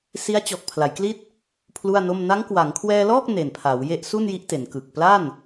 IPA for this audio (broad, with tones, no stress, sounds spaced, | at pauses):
s i˦˥ a̯ t͡ɕ ɔː˨˩ k̚ pʰ l a˩˦ j k l i˥˩ t̚ | pʰ l u˥˩ a̯ n o˥˩ m n a˦˥ ŋ k w a˩˦ ŋ kʰ w ɛː˧ l ɔː˥˩ k̚ n e˨˩ n pʰ aː˩˦ w j e˦˥ ʔ s u˥˩ n j i˦˥ ʔ t e˩˦ n k ɯ˨˩ k̚ p l a˥˩ n